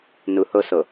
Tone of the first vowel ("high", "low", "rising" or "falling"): low